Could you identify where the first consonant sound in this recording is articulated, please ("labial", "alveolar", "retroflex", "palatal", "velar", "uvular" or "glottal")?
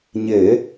palatal